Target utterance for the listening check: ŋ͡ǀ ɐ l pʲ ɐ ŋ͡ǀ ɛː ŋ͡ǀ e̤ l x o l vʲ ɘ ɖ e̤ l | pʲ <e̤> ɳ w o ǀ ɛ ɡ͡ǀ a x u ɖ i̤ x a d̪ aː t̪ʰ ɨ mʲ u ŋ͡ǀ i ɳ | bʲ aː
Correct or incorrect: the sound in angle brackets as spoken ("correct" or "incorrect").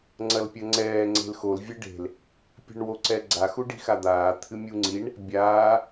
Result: correct